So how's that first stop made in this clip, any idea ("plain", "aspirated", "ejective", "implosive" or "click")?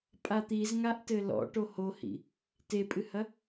ejective